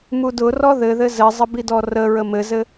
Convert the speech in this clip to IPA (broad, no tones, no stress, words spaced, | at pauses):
mudʊrɔ ðɘðɘ zɘzˤə bidɔrə ɹəmɘzɘ